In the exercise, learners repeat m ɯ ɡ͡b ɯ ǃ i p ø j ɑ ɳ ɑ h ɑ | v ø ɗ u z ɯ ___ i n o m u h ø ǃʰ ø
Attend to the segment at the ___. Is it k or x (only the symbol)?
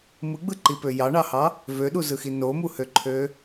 x